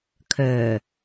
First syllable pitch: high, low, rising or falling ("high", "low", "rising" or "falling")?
low